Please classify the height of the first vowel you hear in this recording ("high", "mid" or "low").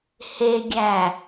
mid